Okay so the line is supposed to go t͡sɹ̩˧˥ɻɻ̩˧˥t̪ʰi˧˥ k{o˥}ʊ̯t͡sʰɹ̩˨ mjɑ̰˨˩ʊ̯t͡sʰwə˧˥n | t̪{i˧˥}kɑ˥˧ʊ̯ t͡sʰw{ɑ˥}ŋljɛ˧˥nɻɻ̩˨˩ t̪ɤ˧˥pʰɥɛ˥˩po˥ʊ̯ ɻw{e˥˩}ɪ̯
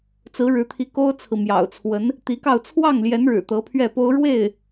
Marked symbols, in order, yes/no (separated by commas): yes, yes, no, yes